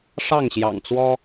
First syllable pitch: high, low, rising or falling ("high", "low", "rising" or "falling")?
falling